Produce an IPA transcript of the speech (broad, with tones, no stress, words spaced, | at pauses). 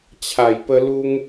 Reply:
t͡ɕʰa˨˩jpə˧lu˧ŋ